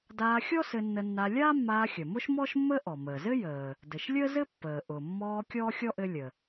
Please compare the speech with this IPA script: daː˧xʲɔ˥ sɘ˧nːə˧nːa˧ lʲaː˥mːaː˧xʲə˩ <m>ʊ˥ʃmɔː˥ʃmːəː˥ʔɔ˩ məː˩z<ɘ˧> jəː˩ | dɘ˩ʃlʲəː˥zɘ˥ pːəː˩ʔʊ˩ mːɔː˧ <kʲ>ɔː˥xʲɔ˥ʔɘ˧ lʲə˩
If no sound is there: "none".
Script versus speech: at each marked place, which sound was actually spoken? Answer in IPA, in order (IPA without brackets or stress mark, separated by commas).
m, ɘ˥, kʲ